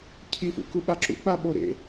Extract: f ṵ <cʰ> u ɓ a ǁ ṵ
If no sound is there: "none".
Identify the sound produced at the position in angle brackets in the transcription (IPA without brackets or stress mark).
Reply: k